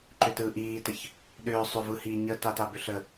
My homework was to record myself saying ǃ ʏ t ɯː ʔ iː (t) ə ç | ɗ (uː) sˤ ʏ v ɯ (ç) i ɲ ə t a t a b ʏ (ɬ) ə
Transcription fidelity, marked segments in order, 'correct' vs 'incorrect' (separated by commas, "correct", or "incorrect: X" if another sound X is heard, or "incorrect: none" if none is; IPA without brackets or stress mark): correct, incorrect: ʏː, incorrect: h, correct